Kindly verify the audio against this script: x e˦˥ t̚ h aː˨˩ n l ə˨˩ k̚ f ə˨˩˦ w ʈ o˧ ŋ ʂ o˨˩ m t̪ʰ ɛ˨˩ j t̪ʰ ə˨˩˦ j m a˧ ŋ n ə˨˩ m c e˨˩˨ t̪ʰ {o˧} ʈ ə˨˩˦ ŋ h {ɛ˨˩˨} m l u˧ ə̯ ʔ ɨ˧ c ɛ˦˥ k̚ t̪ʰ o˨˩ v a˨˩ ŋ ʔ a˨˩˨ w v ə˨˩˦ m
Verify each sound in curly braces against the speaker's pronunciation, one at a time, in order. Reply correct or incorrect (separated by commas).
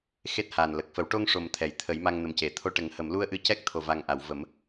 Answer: correct, incorrect